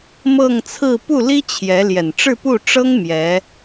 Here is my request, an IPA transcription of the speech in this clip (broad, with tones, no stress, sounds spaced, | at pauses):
m ɤ˥˧ ŋ t͡sʰ ɹ̩˥˧ p u˥˩ l i˥ t͡ɕʰ j ɛ˧˥ l j ɛ˨˩ n ʈ͡ʂ ɻ̩˥˧ p u˥˩ ʈ͡ʂ ɤ˥ ŋ m j ɛ˧˥